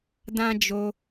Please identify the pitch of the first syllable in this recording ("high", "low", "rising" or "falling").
high